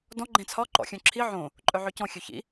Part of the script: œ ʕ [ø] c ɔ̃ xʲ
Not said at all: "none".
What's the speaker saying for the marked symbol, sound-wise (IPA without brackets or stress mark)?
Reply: ø